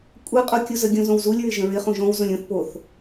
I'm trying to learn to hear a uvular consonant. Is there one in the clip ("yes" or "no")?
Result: yes